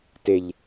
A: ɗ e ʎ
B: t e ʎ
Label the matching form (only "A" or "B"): B